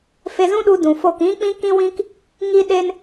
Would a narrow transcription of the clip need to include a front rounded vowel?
no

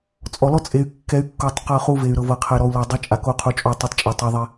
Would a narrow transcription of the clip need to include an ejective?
yes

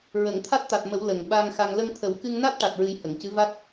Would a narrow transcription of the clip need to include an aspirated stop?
yes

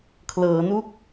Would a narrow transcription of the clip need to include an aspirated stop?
yes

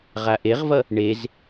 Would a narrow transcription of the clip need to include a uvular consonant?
yes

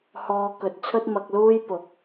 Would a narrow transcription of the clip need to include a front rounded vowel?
no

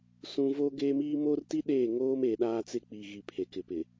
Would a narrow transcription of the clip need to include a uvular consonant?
no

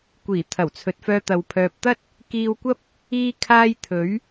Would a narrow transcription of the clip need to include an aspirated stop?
yes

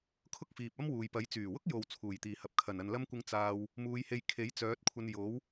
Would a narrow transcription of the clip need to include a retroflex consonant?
no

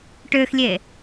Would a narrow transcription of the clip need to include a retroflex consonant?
yes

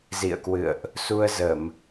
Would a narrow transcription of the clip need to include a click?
no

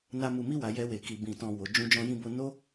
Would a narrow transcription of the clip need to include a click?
no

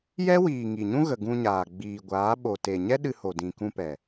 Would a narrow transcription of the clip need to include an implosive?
yes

